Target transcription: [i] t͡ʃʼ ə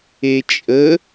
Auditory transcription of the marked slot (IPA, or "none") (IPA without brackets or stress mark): e